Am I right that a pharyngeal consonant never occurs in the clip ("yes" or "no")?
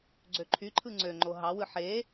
no